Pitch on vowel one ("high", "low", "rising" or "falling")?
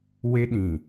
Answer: high